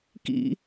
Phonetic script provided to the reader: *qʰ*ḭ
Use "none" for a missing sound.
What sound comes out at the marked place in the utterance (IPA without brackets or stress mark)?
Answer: k